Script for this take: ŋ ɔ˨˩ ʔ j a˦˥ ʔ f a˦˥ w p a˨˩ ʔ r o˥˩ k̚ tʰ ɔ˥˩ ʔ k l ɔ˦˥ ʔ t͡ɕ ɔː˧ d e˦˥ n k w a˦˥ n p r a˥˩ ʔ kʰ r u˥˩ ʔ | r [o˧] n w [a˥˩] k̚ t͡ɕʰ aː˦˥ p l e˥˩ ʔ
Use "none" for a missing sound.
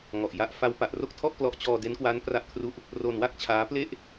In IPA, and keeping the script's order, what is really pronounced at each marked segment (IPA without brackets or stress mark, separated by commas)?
o˧, a˥˩